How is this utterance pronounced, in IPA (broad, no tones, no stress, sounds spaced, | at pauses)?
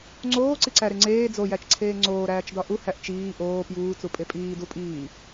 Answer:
ŋ͡ǀ oː ǀ i ǀ æ ɾ e ŋ͡ǀ eː d͡z o j æ t͡ʃ ǀʰ eː ŋ͡ǀ oː ɾ æː t͡ʃ d ɒ ʔ u h æ ʔ t͡ʃ iː ʔ oː p j uː t͡s u pʼ e pʼ iː d u pʼ iː